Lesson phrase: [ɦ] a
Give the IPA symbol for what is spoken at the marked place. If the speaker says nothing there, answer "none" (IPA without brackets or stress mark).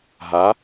ɦ